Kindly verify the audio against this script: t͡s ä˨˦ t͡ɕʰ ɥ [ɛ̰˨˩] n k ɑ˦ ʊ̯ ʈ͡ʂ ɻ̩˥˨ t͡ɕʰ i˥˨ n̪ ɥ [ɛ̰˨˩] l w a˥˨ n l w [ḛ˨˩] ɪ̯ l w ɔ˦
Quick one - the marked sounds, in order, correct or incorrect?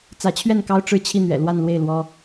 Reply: incorrect, correct, incorrect

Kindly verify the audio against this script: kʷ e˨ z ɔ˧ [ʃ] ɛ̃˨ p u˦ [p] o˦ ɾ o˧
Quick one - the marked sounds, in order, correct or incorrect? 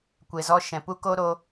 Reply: correct, incorrect

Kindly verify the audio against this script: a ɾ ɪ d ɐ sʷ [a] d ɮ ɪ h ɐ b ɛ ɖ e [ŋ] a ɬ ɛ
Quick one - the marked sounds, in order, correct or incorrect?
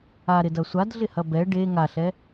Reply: correct, correct

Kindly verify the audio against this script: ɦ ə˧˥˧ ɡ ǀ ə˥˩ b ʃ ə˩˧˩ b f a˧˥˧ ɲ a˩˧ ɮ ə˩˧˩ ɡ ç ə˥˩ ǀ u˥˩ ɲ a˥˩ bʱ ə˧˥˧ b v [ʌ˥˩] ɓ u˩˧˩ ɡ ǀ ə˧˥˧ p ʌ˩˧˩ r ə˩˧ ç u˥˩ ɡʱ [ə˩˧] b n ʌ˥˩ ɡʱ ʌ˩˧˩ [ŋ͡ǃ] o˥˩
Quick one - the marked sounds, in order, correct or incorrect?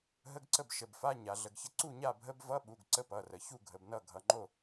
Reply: incorrect, correct, correct

